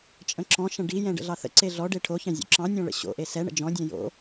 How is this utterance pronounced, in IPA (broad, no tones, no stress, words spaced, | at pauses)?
t͡ʃʼə̃ǁɔ̃ʃɐ̃ ɖijɛ̃ ɖə̰ɮɑθə̰ǀe ɮɔɖe ʈʰoçɑ̃ zʲo̰ǁɑ̃nʲɔ̃ ɭə̰ɕo̰ʔe sɛɳə̰ d͡ʒɔ̃dʲɛ̃ jo̰